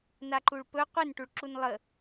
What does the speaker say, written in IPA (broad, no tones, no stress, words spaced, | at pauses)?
naǃuɭpɵ qʷinʈuɭǁun lˠə